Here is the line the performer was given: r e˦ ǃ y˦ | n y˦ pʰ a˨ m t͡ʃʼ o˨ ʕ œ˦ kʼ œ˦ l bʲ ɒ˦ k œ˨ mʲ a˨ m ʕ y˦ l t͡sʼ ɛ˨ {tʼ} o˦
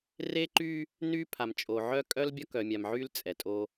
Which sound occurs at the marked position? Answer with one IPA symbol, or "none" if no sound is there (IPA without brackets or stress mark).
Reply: tʼ